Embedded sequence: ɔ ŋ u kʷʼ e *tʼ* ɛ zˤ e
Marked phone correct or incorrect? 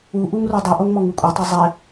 incorrect